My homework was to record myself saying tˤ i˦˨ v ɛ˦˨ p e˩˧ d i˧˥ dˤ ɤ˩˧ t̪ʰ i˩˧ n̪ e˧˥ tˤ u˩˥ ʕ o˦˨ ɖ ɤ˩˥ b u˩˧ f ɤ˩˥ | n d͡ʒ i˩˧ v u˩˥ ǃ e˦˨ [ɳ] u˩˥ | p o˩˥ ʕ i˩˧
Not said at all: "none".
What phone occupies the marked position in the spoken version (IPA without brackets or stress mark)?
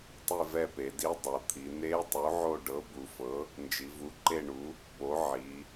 ɳ